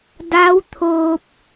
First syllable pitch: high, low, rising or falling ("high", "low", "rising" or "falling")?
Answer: rising